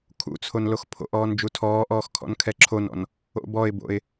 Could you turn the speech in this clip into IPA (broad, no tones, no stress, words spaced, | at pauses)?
kʰṵt͡sʰon loxpʰo̰ʔɔːn d͡ʒutʰɔːʔɔːx kʰɔ̰nkʰɛǁʰonɔ̰n | o̰bɔɪ̯bo̰ɪ̯